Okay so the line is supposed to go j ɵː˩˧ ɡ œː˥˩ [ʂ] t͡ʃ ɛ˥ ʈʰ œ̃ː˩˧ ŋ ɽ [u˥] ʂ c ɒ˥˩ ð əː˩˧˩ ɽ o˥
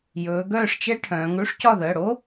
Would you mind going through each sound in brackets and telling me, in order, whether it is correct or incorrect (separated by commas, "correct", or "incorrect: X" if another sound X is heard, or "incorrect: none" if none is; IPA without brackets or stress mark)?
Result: correct, correct